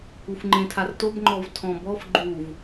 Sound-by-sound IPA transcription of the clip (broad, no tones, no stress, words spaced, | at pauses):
ufŋ͡ǃẽtʰartob ŋ͡ǃɔvtʰɔ̃bɔf ɡ͡ǃuv